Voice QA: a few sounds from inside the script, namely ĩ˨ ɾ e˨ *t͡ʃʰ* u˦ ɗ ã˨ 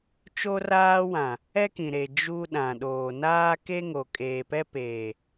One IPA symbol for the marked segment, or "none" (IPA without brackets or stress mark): d͡ʒ